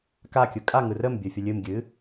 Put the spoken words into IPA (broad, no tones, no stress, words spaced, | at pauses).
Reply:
kakʲɯ kʼaŋɯ rəmbʲɵfʲə lʲɨmɡʲɨ